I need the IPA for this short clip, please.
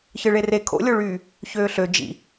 ç ɯ ɭ e r e kʰ o̰ lʲ o ɭ yː | ç øː ɬ ø d͡ʒ ḭ

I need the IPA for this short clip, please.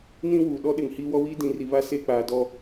n ĩ˦ w uː˨ ɗ ɔ˦ ɗ ɪ˨ ŋ h iː˦ w ɔ˦ w iː˦ d ĩ˨˦ r i˨ β a˦ s e˦˨ k͡p aː˨ d ɔ˨

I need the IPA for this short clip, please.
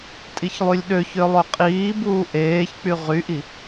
tʼ i ç lˠ y lʲ ɗ ø ç ø lˠ ø qʼ iː b uː ʔ eː ç k͡p y ʁ y ʔ i

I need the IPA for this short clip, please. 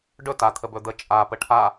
ɖ ɵ t a t̪ʰ ə b ɵ d̪ ə t͡ʃʼ a p ə ʈʰ a

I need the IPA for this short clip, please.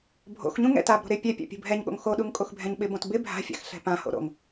bʱ o̰ x ɲ ũ ŋ ɛ̰ t a b ɾ o̤ ɾ ɪ pʲ ɛ pʲ a̰ pʲ ṳ bʱ ɛ ɲ ɠ o̰ ŋ x o ɗ u ŋ kʼ o x bʱ ɛ̃ ɲ ɓ ɪ b õ t b ɪ bʱ a̤ fʲ a̰ x ɬ ɛ̤ p ã h o̰ ɾ o̰ ŋ

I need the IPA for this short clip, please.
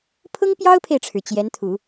pʰ ʊ˥ ŋ p j ɑ˥ ʊ̯ pʰ e˨ ɪ̯ ʈ͡ʂʰ ɻ̩˩ t͡ɕ j ɛ˧˥ n t̪ʰ u˨˩˦

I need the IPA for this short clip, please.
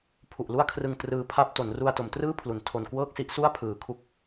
pʰ u˨˩ ʔ l u˥˩ a̯ kʰ r ɯ˧ ŋ t r ɯː˧ pʰ a˥˩ p̚ t o˩˦ n r u˧ a̯ t o˩˦ m t r ɯː˥˩ pʰ l u˩˦ n tʰ o˨˩ n k w ɤː˥˩ k̚ s i˦˥ ʔ s u˥˩ a̯ pʰ ɯː˨˩ kʰ u˥˩ k̚

